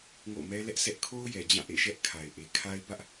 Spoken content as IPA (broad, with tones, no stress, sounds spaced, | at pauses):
ŋ o̰˦˨ m ɛ˦ l ɛ˦ ʔ sʰ ɛ˦ ʔ kʰ o˦ ʊ̯ j ɛ˨ d͡ʑ ã˦˨ ʔ ḛ˦˨ ʃ ɛ˦ ʔ kʰ a˨ ɪ̯ ʔ e˨ kʰ a˦ ɪ̯ b ä˦ ʔ